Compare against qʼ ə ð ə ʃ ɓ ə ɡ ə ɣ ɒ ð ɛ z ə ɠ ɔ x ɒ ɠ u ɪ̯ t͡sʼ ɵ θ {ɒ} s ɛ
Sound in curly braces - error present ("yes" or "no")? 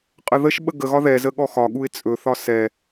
no